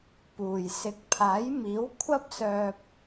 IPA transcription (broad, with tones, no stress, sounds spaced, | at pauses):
p uː˨˩ j s ɪ˨˥ k̚ pʰ aː˨˥ j m iː˨˥ w kʷʰ ɐ˥ p̚ s œː˧ p̚